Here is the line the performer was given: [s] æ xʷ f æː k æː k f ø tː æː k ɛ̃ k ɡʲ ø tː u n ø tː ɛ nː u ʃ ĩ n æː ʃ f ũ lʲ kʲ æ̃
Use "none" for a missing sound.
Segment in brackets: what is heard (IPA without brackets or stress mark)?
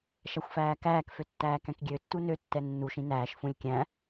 ʃ